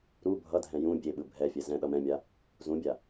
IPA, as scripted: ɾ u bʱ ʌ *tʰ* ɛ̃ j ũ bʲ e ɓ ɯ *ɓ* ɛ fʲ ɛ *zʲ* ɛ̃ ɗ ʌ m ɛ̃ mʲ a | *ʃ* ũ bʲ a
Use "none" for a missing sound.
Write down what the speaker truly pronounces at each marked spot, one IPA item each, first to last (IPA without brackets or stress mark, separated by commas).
dʱ, bʱ, z, z